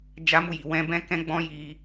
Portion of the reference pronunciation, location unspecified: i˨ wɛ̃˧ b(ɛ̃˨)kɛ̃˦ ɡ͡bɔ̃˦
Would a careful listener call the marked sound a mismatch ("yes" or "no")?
yes